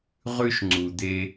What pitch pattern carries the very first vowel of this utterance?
high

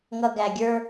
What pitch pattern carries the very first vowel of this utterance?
low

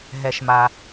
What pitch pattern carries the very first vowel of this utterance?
low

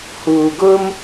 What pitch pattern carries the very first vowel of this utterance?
low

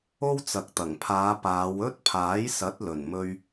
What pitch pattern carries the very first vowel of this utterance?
high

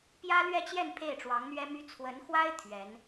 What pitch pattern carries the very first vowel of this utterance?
high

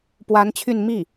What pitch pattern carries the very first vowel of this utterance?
rising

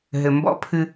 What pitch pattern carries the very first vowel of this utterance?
low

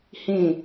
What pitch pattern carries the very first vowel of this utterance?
falling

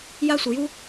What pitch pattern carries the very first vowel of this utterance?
high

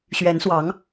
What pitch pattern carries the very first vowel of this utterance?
rising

